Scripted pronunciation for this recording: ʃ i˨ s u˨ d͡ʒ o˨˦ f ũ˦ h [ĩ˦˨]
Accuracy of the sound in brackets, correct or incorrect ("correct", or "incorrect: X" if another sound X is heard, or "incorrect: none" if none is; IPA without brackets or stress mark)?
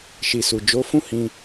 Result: incorrect: ĩ˧